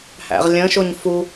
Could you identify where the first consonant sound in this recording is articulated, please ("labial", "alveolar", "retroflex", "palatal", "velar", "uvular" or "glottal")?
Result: glottal